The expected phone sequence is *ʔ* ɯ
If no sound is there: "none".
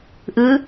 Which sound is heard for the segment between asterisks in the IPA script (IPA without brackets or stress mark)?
ʔ